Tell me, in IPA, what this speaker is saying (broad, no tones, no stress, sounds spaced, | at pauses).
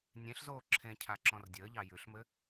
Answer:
nʲ ẽ ɬ z oː ǁʰ ẽ cʰ a ǁ ɔ̃ r dʲ əː ʎ ɑ j ʉ ɬ m ɘ